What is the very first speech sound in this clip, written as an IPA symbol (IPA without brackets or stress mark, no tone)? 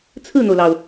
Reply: t͡sʰ